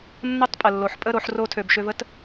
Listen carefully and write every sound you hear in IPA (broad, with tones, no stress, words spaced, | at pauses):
nːo˧tˤpʼə˨lːo˨ħ pʼə˦˨ɾo˧ħro˧ tʰø˨bʃø˧və˦t